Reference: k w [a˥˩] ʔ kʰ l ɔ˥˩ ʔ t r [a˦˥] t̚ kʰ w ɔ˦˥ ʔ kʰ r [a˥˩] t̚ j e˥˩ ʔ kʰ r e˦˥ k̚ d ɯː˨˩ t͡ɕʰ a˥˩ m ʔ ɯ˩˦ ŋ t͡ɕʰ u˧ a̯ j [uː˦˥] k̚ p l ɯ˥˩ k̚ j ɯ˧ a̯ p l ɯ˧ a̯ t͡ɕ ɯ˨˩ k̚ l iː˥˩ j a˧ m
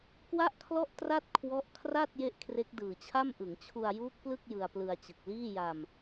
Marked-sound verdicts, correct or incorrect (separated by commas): correct, incorrect, correct, correct